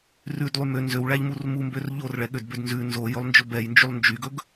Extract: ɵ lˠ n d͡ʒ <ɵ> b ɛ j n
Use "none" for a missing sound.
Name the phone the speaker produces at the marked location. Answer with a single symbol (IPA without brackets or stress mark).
ɵ